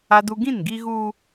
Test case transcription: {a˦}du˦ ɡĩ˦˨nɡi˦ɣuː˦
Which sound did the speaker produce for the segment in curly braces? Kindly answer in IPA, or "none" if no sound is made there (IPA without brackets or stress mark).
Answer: a˦